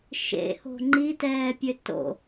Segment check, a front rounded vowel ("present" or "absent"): present